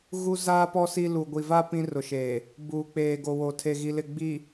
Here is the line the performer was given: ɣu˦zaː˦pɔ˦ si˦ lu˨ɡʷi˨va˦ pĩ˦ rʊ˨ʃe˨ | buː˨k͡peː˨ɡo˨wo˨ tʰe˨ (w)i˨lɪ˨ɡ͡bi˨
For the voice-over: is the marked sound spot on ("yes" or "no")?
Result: no